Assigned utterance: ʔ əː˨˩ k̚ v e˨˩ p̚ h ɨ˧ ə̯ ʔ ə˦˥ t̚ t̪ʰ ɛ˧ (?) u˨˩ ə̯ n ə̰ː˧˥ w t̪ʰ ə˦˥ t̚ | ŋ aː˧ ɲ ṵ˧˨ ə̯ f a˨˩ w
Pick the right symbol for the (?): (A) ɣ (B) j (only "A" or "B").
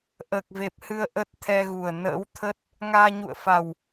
A